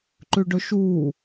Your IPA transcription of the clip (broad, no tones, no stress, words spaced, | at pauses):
ǃʉɖɵʃuː